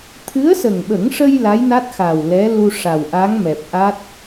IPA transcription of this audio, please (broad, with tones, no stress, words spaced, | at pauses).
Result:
t̪ʰɨ˧˥ə̯sə˨˩ŋɓə˨˩˦ŋʂə˧j la˧˥jna˦˥t̚ xa˨˩w lɛ˧˥lu˧ ʂa˨˩wʔa˧˥ŋmɛ˨˩p̚ʔa˦˥t̚